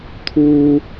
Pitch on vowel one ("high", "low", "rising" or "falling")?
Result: high